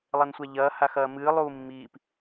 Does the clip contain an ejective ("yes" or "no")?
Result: no